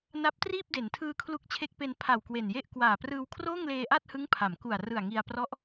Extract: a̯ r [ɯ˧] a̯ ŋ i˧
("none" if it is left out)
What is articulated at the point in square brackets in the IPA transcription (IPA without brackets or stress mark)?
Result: ɯ˨˩